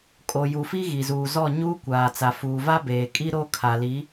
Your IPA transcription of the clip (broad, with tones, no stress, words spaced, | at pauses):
kʼo˨ju˨fi˦ ɣi˨zuː˨zɔ˦˨ ɲuː˦kʷaː˨t͡sa˨ fuː˨va˦beː˨kʼi˦ ɾo˦ kʰa˨li˨˦